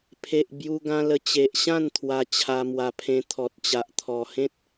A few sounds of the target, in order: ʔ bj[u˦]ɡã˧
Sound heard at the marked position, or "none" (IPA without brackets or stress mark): u˧